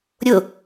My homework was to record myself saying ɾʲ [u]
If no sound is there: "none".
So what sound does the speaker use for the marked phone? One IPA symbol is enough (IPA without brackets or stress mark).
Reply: ʊ